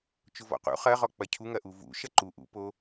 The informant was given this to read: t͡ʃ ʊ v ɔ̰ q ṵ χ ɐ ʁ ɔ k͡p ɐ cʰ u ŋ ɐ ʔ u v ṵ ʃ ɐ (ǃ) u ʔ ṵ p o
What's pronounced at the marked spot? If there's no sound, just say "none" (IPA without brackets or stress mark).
ǃ